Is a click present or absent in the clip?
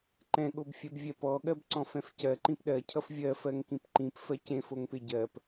present